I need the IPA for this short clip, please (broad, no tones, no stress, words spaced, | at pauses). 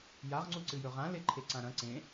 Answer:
jaʁŋ͡ǀu ǀɨjɵʁã leǃʰeǀãɾɐ̃ ǀẽ